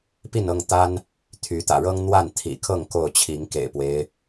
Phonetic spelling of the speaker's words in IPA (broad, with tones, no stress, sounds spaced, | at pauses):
p i˥˨ n ɤ˥˨ ŋ t̪ a˦ n | t̪ʰ y˨˦ t̪ ä̰˨˩ ɻ ɤ˦ ŋ n̪ w a˥˨ n t̪ʰ ḭ˨˩ kʰ ɤ˥˨ ŋ k o˥˨ ʊ̯ t͡ɕʰ i˨˦ ŋ k ḛ˨˩ ɪ̯ p w e˦ ɪ̯